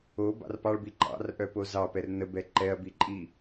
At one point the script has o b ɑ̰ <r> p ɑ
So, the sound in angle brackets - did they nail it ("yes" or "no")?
yes